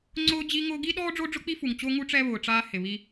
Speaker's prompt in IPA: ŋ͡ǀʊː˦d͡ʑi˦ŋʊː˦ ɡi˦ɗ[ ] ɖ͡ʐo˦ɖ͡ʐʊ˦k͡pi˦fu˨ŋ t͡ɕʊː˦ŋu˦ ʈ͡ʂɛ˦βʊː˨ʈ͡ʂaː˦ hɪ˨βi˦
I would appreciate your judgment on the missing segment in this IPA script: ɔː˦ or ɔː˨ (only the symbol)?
ɔː˦